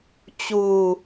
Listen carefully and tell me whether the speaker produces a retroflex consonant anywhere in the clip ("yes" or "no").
no